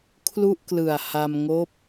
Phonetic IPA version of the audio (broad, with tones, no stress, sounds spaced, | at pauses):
kʰ l u˥˩ ʔ k l ɯ˨˩ a̯ h a˧ m ŋ oː˦˥ p̚